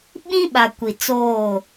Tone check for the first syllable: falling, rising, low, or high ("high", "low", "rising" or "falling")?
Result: high